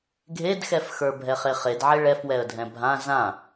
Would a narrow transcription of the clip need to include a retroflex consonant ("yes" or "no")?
yes